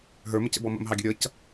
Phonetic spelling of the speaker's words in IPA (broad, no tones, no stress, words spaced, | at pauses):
ɦə˞məcə̰bɔ mə̰mɦɑɡʲə ɾʲʌc